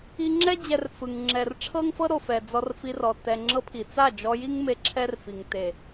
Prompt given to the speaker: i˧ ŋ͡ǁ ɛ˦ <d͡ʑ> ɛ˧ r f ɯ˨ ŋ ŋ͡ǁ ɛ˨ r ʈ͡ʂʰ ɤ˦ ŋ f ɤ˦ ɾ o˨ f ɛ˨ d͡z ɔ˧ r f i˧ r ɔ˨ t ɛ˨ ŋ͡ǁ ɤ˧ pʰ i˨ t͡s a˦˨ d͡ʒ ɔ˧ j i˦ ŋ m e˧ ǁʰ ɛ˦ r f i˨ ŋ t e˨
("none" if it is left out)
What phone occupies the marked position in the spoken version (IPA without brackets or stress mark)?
d͡ʑ